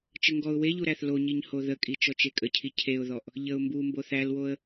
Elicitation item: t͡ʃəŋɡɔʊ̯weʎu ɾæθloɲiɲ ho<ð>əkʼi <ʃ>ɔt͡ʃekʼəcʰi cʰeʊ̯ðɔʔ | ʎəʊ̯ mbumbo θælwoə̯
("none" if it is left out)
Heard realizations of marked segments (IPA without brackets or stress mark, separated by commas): ð, t͡ʃ